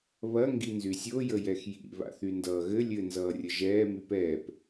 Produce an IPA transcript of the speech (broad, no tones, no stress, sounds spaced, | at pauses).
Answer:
β ɐ ŋ ɡ i n z y sʲ o j ə j ɛ x j ḭ β a̰ θ y n d ʌː ɣ ɘ lʲ ɘ n z ʌː rʲ ə ʒ ɛː m y p ɛː p